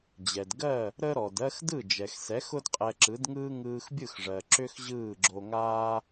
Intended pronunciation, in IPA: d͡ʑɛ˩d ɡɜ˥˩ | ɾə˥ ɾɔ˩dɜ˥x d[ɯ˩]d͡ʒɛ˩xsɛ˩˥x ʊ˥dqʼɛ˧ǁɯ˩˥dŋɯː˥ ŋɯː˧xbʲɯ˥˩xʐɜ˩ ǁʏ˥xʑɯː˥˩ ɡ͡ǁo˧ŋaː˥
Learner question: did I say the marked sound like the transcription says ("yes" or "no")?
no